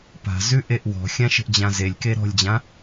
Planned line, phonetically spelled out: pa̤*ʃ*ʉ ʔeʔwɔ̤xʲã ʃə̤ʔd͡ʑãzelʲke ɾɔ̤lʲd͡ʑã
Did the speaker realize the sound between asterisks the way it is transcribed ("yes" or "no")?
no